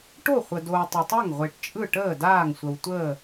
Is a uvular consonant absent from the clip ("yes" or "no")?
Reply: no